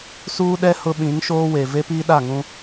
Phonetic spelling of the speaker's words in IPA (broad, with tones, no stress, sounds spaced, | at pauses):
s uː˦ ɗ ɛ˦ h ʊ˦ ɓ ĩ˨˦ ŋ ʃ oː˦ w e˨ v e˦ p iː˦ ɗ a˦˨ ŋ ũ˦